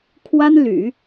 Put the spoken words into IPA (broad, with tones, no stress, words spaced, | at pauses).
kʰwa˥nly̰˨˩˦